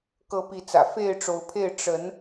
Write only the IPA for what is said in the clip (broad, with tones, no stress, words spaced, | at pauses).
kɤ˨˦pi˨˦t͡sä̰˨˩ fe˥˨ɪ̯ʈ͡ʂo˨˦ʊ̯pʰe˥˨ɪ̯ ʈ͡ʂə˨˦n